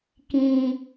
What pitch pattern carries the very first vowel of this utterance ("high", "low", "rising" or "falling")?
low